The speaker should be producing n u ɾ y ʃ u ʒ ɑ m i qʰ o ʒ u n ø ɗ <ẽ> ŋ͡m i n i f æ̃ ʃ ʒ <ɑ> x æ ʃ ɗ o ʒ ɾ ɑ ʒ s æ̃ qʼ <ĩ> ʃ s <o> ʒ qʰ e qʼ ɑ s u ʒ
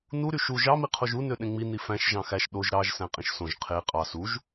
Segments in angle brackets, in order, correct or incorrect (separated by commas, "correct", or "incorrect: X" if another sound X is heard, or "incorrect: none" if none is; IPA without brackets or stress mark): correct, incorrect: ɑ̃, correct, incorrect: õ